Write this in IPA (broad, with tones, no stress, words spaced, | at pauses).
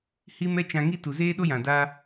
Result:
hi˦mɛ˦ t͡ʃã˧ŋi˦ tu˨zeː˦ɗo˦jã˨ da˧